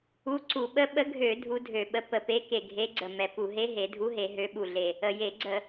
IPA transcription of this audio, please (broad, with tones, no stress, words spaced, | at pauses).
u˧˥ǀu˧˩˧ ɓə˧˥ɓə˧˥ ɡʱø˧˩˧ dʱu˧˥dʱø˧˩˧ɓə˧˥ pə˨˩pe˧˥ke˨˩ ɡʱe˧˥ɡ͡ǀə˨˩ mɛ˨˩pu˧˩˧ɦe˧˥ ɦe˩˧dʱu˧˥ɦe˩˧ ɦø˧˥ɓu˨˩ɮe˨˩ | ə˨˩je˧˩˧ɡ͡ǀə˧˩˧